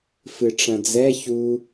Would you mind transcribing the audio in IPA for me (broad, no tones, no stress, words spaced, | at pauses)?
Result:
fɨʈ͡ʂɐ̃d͡zɛ çu